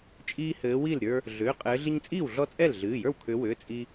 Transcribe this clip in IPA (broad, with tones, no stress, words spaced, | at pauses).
t͡ʃʼiː˦hɘː˨˦wi˥˩lɾʲə˞˦ | ɮʏː˩˧˩qʼɘː˨˦ ɮi˦ɲt͡sʼiː˥˩wɮɔ˦t͡sʼɛ˥˩l ɮɨː˩˧˩jə˞˥˩wkʰʏː˨˦wʏː˩˧˩ t͡sʼi˦